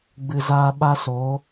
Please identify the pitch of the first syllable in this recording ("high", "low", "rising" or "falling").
low